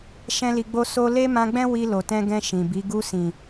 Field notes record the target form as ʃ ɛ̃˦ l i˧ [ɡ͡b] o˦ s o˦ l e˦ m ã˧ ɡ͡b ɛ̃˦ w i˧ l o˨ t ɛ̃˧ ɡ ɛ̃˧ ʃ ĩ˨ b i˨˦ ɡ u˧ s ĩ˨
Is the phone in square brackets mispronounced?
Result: no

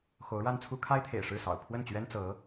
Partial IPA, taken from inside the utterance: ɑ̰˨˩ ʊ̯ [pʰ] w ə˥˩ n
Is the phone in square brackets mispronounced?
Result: no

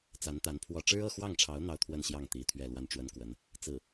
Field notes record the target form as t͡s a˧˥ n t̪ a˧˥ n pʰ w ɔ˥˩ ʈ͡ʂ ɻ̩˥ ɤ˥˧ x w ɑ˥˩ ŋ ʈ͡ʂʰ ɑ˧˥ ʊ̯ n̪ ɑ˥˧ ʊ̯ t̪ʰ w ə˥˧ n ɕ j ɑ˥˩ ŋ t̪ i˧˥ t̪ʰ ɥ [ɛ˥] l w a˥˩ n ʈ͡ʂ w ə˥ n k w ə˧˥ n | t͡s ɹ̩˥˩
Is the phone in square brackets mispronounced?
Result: yes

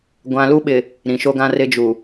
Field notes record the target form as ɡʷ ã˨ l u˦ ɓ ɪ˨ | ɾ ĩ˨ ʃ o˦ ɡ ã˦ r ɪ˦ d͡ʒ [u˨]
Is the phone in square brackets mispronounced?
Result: no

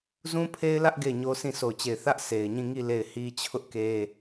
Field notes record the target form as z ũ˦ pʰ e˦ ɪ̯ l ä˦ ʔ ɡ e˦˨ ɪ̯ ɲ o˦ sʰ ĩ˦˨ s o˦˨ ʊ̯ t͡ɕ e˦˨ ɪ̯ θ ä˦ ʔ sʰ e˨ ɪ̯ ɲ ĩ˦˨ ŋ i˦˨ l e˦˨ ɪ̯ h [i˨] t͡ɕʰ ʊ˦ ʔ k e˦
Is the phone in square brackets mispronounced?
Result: yes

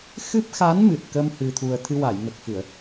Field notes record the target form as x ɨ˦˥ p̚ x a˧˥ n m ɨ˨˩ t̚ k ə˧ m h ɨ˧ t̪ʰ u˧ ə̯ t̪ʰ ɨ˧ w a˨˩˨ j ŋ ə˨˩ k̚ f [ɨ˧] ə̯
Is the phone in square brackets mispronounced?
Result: yes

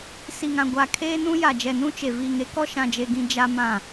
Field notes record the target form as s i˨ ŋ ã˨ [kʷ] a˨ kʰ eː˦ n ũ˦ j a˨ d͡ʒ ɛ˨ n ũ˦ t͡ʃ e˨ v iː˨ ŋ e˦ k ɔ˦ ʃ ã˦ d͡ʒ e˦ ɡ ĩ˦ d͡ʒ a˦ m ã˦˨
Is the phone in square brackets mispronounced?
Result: yes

